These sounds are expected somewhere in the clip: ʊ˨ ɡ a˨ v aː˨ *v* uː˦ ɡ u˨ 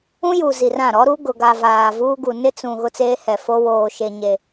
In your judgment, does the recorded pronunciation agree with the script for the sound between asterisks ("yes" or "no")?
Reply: yes